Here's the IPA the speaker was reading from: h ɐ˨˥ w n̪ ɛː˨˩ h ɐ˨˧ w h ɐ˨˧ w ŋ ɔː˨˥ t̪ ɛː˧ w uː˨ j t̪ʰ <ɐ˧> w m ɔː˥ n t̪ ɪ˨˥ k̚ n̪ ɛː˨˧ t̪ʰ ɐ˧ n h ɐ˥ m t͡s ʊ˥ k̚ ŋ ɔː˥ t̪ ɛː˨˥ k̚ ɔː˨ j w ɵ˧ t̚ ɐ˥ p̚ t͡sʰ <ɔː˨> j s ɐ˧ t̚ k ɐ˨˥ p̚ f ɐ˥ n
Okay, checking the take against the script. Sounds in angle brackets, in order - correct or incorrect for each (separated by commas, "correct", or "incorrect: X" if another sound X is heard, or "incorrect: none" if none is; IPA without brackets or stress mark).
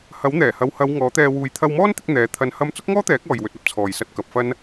correct, correct